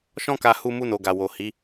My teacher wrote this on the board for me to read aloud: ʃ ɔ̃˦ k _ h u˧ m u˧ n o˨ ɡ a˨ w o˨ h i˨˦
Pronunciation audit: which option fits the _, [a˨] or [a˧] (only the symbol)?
a˧